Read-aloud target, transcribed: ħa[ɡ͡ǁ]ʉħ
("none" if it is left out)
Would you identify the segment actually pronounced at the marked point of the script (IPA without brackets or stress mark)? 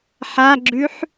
ɡ͡ǁ